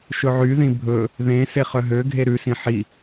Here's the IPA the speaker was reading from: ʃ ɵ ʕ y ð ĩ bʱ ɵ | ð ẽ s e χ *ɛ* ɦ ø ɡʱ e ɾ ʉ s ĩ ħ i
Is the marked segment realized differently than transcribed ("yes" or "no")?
yes